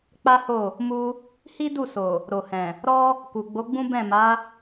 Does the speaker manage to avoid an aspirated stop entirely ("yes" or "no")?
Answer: yes